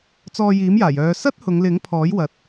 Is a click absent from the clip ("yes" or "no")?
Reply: yes